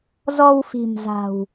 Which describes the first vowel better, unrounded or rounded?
rounded